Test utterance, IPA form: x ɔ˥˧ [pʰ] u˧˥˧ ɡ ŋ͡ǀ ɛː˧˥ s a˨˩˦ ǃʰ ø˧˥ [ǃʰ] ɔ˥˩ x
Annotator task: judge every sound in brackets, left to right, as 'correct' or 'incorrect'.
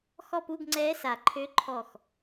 incorrect, correct

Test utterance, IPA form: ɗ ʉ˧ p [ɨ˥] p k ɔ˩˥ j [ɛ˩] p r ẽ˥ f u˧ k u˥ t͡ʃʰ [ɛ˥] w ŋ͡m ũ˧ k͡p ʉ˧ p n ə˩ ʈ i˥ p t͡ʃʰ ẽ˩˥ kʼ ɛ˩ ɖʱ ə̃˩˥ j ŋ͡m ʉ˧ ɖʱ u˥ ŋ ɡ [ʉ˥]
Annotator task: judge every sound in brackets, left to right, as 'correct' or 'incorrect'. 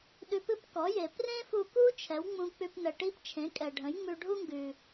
correct, incorrect, incorrect, incorrect

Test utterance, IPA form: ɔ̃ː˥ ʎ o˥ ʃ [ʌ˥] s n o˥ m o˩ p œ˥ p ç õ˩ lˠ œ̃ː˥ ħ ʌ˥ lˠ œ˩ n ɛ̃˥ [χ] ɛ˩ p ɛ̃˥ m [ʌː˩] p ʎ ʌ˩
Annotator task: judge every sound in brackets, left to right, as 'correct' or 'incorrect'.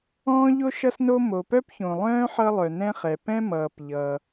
correct, correct, correct

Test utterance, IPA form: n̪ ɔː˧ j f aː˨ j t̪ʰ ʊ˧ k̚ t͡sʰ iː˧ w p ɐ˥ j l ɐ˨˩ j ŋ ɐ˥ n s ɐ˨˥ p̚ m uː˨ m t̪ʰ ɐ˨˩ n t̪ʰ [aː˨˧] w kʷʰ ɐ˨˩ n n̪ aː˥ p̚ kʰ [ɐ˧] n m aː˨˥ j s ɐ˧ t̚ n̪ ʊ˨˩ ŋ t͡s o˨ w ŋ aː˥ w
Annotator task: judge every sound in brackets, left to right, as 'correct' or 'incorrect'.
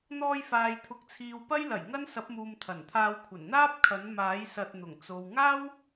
incorrect, incorrect

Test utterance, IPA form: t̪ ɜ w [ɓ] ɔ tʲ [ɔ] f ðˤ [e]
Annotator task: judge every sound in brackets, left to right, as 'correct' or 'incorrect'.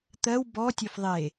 incorrect, incorrect, correct

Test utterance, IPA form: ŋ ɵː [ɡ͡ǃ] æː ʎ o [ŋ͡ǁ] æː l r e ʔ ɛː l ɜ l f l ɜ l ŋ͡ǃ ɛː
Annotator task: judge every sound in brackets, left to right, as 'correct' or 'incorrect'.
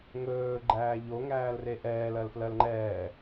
correct, incorrect

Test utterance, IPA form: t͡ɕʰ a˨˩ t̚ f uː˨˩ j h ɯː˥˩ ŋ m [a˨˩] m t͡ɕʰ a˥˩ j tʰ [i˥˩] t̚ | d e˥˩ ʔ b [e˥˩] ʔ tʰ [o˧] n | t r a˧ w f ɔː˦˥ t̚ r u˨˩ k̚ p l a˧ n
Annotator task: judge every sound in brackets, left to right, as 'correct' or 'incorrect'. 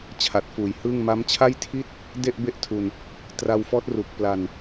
incorrect, correct, correct, incorrect

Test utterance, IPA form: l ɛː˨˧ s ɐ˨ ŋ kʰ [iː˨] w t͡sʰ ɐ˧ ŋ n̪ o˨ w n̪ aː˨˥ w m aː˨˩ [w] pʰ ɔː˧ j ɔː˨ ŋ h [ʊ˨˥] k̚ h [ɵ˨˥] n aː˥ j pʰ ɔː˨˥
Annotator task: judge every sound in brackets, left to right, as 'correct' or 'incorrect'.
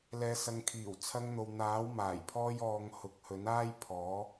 incorrect, incorrect, correct, correct

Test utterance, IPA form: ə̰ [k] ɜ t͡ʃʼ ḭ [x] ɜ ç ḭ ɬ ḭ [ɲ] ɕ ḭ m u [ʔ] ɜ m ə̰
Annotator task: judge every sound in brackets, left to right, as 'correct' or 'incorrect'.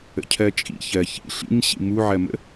incorrect, incorrect, correct, incorrect

